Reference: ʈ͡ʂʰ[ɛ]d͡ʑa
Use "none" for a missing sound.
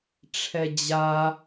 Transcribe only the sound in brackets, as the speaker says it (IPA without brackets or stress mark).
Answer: ɛ